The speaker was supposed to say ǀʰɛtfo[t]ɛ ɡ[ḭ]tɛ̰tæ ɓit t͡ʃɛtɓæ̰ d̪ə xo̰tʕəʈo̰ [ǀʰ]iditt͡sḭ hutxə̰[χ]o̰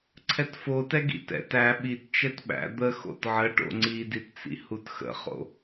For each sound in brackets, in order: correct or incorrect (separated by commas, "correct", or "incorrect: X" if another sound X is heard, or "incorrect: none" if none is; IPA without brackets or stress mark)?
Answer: correct, correct, incorrect: ŋ͡ǀ, correct